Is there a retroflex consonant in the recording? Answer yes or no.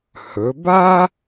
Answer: no